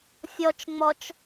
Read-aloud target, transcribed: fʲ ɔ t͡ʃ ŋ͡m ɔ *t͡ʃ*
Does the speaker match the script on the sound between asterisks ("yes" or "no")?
yes